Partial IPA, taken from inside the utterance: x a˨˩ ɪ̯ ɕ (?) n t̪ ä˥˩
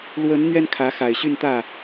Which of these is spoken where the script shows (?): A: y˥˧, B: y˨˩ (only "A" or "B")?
A